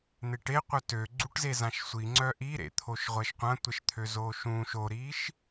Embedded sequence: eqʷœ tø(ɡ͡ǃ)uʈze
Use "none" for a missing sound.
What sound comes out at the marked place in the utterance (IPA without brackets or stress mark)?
ɡ͡ǀ